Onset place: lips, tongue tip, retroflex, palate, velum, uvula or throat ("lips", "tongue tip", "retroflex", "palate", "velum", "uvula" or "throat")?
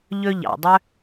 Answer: palate